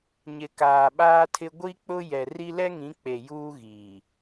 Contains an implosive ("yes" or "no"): yes